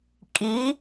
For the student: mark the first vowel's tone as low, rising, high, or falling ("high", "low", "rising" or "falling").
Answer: rising